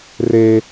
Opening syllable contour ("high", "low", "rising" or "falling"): high